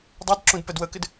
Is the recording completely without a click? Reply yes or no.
no